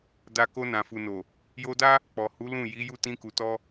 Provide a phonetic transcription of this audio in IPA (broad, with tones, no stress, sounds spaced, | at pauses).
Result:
d a˧ k o˧ n ã˨ f u˨ n o˨ | j o˧ d a˦ | k͡p ɔ˨ h u˨˦ l ũ˦˨ j i˨˦ j u˦˨ t ĩ˧ k u˨ t ɔ˧